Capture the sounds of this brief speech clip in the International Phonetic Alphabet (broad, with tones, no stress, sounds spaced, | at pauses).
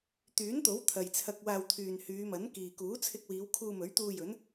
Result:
t̪ yː˨˥ n t̪ o˨˥ w t̪ʰ ɐ˨ j t͡sʰ ɐ˧ k̚ w aː˧ w t̪ʰ yː˨ n h yː˨˧ m ɐ˨˥ n k iː˨ k uː˨˥ t͡sʰ ɪ˧ k̚ w iː˨˧ w kʰ uː˧ m ɵ˨˥ ɥ t̪ uː˧ j ɵ˨˥ n